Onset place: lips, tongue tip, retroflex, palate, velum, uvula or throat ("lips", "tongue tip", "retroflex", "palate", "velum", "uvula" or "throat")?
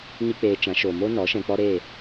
palate